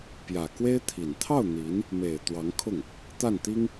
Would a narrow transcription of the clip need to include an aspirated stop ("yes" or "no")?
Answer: yes